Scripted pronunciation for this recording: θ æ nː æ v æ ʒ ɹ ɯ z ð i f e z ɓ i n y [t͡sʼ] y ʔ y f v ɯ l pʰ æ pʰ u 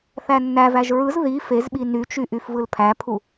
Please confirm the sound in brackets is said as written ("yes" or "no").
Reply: no